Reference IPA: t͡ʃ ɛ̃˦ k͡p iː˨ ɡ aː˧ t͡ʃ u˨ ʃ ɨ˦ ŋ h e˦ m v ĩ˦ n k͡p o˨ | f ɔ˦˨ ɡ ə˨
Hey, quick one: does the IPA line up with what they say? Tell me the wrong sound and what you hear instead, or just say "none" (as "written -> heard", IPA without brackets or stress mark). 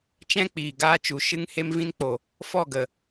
none